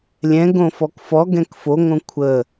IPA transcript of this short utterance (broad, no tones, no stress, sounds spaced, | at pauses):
lʲ ɛ̃ ɡ õ f ɔ k f ɔ ɡ ɛ̃ k f o ŋ õ kʷʰ ə